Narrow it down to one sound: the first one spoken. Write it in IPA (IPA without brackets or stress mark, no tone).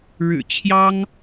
ɻ